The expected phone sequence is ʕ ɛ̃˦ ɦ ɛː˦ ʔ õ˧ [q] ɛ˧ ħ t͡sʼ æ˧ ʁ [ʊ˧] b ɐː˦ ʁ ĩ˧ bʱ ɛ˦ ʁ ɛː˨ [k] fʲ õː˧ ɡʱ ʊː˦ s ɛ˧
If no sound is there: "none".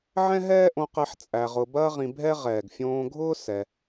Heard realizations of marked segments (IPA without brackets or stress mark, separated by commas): q, ʊ˧, ɡ